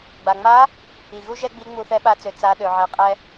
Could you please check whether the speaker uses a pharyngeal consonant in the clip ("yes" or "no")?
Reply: yes